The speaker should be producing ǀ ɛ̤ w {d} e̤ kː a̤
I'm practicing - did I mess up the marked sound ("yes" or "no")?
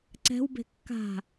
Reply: yes